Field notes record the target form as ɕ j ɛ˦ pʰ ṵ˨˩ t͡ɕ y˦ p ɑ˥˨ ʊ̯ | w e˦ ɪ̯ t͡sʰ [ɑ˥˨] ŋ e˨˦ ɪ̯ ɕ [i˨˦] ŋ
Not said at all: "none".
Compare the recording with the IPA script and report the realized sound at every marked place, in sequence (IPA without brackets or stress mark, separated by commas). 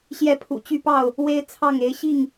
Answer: ɑ˥˨, i˥˨